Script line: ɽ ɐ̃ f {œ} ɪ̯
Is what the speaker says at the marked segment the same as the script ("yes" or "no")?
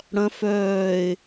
no